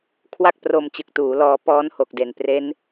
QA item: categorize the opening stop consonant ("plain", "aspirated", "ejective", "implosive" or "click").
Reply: aspirated